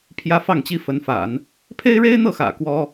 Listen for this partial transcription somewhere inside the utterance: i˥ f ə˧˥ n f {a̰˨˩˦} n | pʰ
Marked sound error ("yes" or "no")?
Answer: no